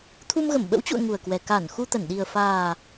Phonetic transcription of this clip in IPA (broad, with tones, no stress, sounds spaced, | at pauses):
t̪ʰ u˧ m ɣ ə˧˩ m ɓ ə̰˧˥ w t͡ɕ ṵ˧˨ ə̯ ŋ u˨˩ ə̯ k w ɛ˨˩ k a˧˩ n x u˧ t̪ ə˧˩ n ɗ i˨˩ ə̯ f aː˨˩